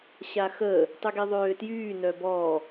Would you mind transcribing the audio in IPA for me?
ɕ a x əː | tˤ y ɡ i ðˤ øː t j yː n œ b ɔː

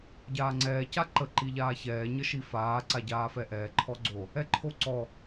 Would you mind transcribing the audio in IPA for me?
ɟ aː ŋ͡ǀ ɛː c a ǃ ə ǃ i ʎ aː ç ɛː ɲ ə ʃ i f aː ǀ a ɟ aː f ɛ ʔ ɛː ǃʰ ɔ ɡ͡ǀ o | ɛ ǃʰ o ǀ ɔ

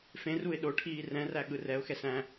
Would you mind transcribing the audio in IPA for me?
f ẽ r u ɪ̯ ɗ o ʈʰ iː r ɛ̃ r æ ɠ ɯ r ɛ ʊ̯ x ɛ s æ̃

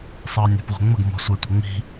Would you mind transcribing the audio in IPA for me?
sˤ ʌː nʲ ɛ̤ p ʁʷ ɛ̤ ŋ͡m ə ɡ m ɔ̤ sʷ æ tʷ ʌ ŋ͡m i̤

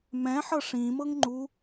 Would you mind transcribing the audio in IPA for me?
m ɛ̃ ħ ɤ ʂ ĩ m ɤ ŋ ŋ͡ǃ u

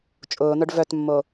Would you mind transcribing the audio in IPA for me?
t͡ʃʼ ʊː n̪ œ ɖ v œ t mː o

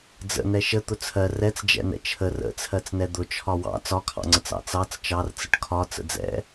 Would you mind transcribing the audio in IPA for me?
d͡z ə̰ n ɛ ʃ ə t̪ ʊ t͡sʰ ɜ r ɛ t͡s d͡ʒ ɛ̰ n ɛ̰ t͡ʃʰ ə r ə̰ t͡sʰ ɜ t͡s n ɛ d̪ ʊ t͡ʃʰ ɒ w ɑ̰ t͡s ɒ kʰ ɑ̰ ŋ͡ǀ ə t͡s ɑ̰ t͡s ɑ t͡s t͡ʃ ɑ r t͡s ə ʈ kʰ ɒ t͡s ə̰ d͡z ɛ̰

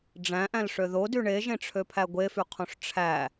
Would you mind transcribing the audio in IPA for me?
ɖ͡ʐ æ̃ ʔ æ̃ l ʂ ø ð o d y ɳ e ʒ ẽ ʈ͡ʂʰ ø pʰ æ ɡʷ e f y qʰ õ ʂ ʈ͡ʂʰ æ

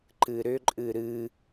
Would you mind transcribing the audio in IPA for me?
ǃ ɨ ɾ ʏ ǃʼ ɨ ɾ ɨ

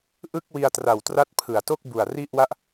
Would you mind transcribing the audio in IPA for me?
ʔ ɯ˥˩ k̚ w i˧ a̯ t r a˨˩ w t r a˦˥ t̚ pʰ ɯ˩˦ a̯ t o˥˩ k̚ b u˨˩ a̯ r i˥˩ ʔ w a˥˩ ʔ

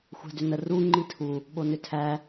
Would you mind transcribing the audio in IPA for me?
xʷ æ̤ d ʏ n ə r u ŋ͡ǃ i tʰ u | ɓ o n ʏ tʰ æ

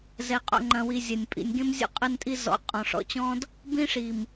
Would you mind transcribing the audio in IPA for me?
z ɛ˨ qʼ o̰˨ ŋ͡ǃ ɐ̃˨ w i˨ zʲ ɐ˨ nʲ pʼ ḭ˨ nʲ ɡ ẽ˦ m zʲ o̰˦ qʼ ɘ˦ n tʼ i˦ z ɔ̰˨˦ qʼ ɔ̃˨ ʂ ɔ̰˨ t͡ɕ ɔ̃˦ d | b ĩ˦ ʂ i˨ m

